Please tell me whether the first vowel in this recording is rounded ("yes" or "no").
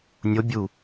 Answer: yes